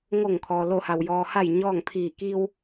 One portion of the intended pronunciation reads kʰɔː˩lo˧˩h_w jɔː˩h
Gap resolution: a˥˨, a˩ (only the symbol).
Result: a˩